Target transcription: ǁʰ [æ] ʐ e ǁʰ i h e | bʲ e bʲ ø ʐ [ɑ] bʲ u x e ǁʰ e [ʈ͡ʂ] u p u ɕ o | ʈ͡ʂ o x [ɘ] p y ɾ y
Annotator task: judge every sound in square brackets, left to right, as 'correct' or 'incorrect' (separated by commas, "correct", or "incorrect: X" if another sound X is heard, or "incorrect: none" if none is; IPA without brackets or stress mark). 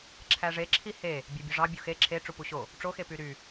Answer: correct, correct, correct, incorrect: e